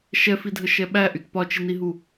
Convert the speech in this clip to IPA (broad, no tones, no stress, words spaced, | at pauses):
ʃɛfidʱəʃɛ ɓæʔyt pɒt͡ʃiniɦu